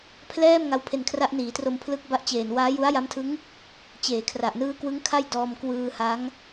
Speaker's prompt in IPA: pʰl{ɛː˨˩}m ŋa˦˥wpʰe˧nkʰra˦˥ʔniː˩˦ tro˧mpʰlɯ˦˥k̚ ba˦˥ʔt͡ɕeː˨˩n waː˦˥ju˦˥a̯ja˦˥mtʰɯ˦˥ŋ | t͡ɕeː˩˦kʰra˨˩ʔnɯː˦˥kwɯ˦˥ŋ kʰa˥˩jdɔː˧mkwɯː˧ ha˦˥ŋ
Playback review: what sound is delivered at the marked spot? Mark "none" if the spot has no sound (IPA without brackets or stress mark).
ɛː˥˩